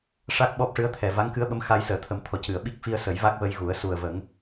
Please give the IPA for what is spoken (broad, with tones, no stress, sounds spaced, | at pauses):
ʂ a˦˥ k̚ ɓ ɔ˦˥ p̚ ʂ ɨ˧˥ ə̯ t̪ʰ ɛ˨˩ v a˧˥ ŋ k ɨ˧˥ ə̯ ɓ ə˧˥ m x a˧ j s əː˨˩ t̪ʰ ə˨˩˦ m t̪ʰ ɔ˨˩˨ c ɨ˨˩˨ ə̯ ɓ i˦˥ k̚ f i˧ ə̯ s ə˨˩˦ j v a˦˥ k̚ v ə˧ j ɣ u˨˩˦ ə̯ s u˨˩ ə̯ v ə˨˩˦ ŋ